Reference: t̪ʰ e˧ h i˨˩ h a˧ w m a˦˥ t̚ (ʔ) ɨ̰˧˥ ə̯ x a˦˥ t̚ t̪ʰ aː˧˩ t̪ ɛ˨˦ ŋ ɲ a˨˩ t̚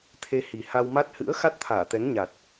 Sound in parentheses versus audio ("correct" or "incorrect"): incorrect